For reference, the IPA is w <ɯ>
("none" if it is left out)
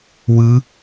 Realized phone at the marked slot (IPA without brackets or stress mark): ɯ